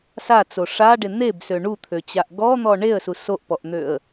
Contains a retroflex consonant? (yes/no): yes